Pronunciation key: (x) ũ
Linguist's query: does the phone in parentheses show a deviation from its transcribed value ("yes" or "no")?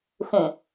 no